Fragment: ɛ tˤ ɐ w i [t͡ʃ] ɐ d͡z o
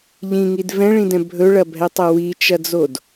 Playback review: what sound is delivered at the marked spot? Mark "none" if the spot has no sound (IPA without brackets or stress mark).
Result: t͡ʃ